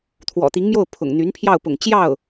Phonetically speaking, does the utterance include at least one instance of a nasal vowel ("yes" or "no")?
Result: no